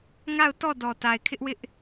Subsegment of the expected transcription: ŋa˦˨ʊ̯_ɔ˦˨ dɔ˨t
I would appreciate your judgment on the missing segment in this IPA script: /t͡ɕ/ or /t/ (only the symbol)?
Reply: t